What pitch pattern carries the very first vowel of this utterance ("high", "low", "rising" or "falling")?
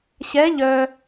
rising